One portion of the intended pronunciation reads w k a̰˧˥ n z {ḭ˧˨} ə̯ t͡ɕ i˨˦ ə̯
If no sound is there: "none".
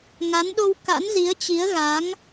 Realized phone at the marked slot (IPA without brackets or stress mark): i˨˦